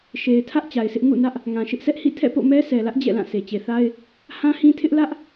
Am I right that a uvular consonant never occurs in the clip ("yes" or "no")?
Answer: yes